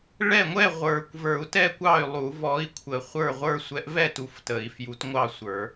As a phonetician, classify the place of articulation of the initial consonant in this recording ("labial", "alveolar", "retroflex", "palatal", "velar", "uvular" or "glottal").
retroflex